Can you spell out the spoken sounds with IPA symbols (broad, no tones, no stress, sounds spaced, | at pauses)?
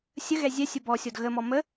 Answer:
sʲ ə ɣ ɛ zʲ ɛ sʲ ə b ɔ sʲ ɔ d ɣ ə m ɔ m ə